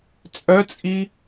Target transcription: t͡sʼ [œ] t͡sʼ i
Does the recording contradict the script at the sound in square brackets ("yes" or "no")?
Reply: no